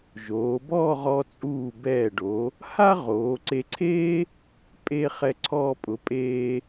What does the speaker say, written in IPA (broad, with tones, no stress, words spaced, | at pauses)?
ʒoː˩˧ bɔː˥˧ʁɔ˧t͡sʼuː˧˩ bɛː˧˩ɖo˩˧ | ha˥ ʁoː˩˧ǀe˧ǀʰeː˥ | pʼe˧ χɛ˧ǀʰɔː˧ pʼʊ˩˧pʼeː˧